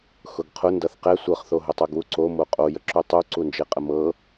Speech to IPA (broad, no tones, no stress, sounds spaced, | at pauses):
x ʊ ɡ qʰ ʊ n d ʌ θ q ɛ sʷ ɤ χ θ o ɦ ʊ tˤ u ɡ w u ǀ o m o qʼ o j ə ǁ u tˤ u ǀ u n d͡ʒ e qʼ ə m ɤ